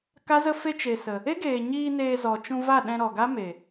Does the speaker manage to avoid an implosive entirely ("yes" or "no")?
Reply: no